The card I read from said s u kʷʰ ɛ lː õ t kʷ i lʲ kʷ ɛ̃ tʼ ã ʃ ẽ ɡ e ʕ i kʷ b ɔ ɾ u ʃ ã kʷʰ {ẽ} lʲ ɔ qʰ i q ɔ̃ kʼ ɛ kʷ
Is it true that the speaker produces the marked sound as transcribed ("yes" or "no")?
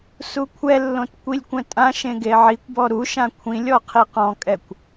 no